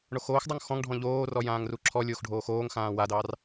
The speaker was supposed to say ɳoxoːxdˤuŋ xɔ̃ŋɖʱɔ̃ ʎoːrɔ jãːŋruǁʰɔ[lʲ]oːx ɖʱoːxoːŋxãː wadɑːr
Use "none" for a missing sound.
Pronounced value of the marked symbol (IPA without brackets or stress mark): lʲ